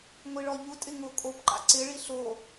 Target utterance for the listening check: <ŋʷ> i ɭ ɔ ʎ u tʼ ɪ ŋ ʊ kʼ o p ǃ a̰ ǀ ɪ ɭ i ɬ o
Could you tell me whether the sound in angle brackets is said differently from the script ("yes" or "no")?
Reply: no